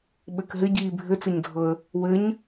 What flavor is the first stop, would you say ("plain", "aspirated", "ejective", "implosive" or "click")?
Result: implosive